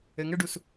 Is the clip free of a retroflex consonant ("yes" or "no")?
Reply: no